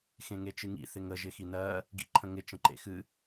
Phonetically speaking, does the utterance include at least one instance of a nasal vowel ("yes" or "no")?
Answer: yes